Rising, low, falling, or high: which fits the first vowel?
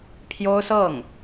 high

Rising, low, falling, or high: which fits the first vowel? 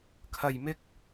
low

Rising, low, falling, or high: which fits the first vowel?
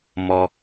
high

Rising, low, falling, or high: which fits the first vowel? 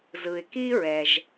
low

